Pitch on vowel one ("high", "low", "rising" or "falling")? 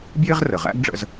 high